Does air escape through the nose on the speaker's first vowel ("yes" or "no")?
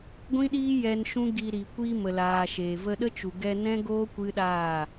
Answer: yes